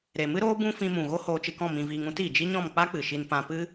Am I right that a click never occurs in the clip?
yes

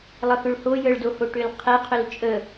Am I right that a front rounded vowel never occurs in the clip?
no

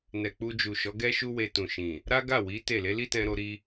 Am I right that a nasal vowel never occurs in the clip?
no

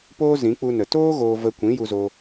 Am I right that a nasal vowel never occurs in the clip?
no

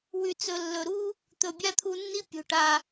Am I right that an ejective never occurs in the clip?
yes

